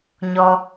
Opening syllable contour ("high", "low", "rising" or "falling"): high